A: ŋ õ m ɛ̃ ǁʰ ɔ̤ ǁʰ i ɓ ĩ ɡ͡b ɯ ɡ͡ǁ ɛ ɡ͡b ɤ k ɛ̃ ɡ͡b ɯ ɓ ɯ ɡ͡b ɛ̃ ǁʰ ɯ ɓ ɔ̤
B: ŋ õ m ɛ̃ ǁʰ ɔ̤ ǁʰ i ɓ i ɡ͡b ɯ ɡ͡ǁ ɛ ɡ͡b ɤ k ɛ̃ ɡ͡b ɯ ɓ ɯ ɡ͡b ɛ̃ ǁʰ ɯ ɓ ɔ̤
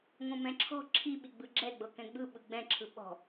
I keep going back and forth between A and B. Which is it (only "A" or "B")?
B